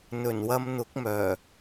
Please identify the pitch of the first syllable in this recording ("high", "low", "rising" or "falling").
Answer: low